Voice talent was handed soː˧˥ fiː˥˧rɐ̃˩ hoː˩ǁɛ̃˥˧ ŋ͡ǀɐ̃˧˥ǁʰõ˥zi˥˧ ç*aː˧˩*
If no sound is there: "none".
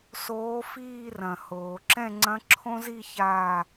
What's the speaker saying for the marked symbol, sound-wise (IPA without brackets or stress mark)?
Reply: aː˧˩